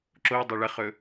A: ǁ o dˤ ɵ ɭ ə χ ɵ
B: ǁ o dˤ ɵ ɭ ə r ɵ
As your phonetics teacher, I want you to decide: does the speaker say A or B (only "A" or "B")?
A